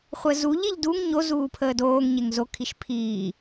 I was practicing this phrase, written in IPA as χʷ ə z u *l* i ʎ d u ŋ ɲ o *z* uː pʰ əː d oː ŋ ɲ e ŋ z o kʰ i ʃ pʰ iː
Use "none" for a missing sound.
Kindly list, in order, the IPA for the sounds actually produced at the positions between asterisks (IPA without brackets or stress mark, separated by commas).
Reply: ʎ, z